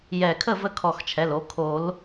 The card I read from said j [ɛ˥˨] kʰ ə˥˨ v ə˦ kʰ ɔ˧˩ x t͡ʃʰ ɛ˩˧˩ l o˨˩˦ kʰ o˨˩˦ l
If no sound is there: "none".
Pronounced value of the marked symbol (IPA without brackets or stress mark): ɛ˧˩